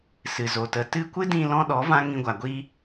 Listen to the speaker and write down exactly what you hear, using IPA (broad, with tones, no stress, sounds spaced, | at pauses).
s ɨ˨ z o˨ t ə˨˦ t ɨ˦ kʷ ɨ˦ d ĩ˧ l ɔ̃˦ ɗ ɔ˨˦ v ã˦ ŋ ĩ˧ ɡʷ a˨ ɡʷ i˦